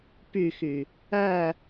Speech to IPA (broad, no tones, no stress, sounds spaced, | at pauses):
p y x y | æ